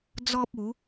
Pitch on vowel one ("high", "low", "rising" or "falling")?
high